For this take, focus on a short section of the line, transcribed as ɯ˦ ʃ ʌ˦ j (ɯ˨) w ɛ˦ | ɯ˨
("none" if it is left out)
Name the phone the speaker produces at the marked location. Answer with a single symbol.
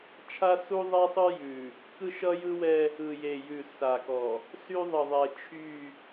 ɯ˦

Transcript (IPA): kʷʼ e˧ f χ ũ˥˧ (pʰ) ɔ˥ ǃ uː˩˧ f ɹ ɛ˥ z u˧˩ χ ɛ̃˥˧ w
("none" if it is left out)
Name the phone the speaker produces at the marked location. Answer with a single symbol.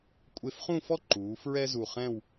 f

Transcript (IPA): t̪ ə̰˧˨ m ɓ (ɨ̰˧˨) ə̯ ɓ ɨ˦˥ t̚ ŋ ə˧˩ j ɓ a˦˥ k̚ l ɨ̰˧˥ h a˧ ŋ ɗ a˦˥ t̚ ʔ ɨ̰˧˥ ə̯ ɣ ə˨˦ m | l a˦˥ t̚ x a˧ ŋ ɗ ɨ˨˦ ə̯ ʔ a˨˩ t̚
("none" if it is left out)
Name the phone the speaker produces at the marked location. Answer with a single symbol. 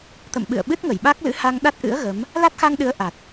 ɨ̰˧˨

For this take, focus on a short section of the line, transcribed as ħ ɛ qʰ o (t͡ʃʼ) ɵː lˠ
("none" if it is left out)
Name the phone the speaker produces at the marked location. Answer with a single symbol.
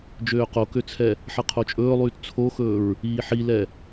t͡ʃʼ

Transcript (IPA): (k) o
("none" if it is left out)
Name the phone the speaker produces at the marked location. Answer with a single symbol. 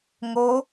ŋ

